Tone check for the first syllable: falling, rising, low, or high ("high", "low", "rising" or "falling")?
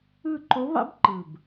falling